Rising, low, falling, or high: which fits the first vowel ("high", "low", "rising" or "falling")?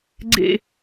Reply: falling